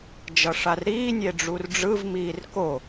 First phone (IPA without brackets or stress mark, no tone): d͡ʒ